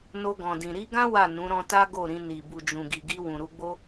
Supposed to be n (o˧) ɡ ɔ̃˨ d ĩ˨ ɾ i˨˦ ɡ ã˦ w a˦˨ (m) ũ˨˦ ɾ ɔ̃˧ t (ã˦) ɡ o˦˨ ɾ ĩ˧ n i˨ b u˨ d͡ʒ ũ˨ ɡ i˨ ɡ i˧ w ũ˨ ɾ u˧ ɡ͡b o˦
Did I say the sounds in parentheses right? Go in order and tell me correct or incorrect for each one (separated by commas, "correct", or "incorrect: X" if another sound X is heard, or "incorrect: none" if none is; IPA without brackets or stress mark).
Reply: correct, incorrect: n, incorrect: a˦